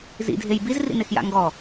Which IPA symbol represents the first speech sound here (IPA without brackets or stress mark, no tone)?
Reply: z